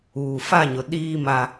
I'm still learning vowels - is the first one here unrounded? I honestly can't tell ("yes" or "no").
no